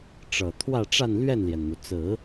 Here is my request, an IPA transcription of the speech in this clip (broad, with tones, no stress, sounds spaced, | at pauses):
ʈ͡ʂ ɤ˨˩ t̪ʰ w ä˥˧ ʈ͡ʂ a˥˧ n l ɥ ɛ˥˩ n l j ɛ˩ n n̪ u˩ t͡s ɹ̩˨˩˦